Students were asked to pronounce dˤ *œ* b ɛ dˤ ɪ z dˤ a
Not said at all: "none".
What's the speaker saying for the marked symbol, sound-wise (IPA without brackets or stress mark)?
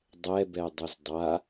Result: ɛ